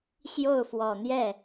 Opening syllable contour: falling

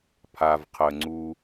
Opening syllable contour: low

